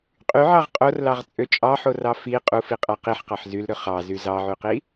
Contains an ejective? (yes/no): yes